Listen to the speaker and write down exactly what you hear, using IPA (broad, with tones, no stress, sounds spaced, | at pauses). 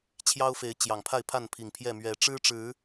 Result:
t͡ɕʰ j ɑ˦ ʊ̯ f e˨˦ ɪ̯ t͡ɕ j ɑ˨˩ ŋ pʰ a˥˨ ɪ̯ pʰ a˥˨ n pʰ i˨˩ ŋ pʰ j ɛ˥˨ m ɥ ɛ˨˦ ʈ͡ʂ ɻ̩˦ ʈ͡ʂ ɻ̩˨˦